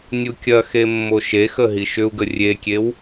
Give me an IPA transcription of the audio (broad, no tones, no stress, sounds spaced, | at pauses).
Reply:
nʲ u kʲ ɐ x e mː o ʃ e x ə ɦ i ʃ ʏ u̯ ɡ ə rʲ e kʲ e w